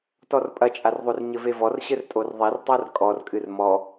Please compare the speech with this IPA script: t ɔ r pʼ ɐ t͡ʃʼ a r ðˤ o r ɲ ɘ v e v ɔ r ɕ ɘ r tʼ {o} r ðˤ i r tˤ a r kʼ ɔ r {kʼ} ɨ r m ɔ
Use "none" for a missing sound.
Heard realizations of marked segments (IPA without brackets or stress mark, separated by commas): o, kʼ